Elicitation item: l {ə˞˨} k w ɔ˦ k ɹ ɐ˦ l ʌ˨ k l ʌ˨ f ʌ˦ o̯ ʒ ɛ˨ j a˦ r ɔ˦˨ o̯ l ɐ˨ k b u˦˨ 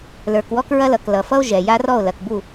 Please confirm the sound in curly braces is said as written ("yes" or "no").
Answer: yes